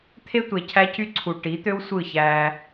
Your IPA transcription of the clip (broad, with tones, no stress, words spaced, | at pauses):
t̪ʰe˦tʷe˨ cʰæ˦cy˦ǀʰu˨ ʈi˨˦t̪ø˦wsʷɯ˦˨çæ˦